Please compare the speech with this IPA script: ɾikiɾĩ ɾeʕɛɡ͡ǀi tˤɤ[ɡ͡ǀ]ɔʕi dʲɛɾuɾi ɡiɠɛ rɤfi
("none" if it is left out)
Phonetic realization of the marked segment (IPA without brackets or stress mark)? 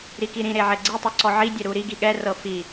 ǀ